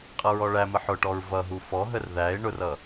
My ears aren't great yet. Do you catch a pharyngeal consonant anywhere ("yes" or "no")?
yes